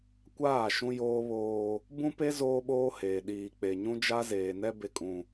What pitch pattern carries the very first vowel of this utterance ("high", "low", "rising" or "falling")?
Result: falling